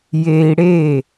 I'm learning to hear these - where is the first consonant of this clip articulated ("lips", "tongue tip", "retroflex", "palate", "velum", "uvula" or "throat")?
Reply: palate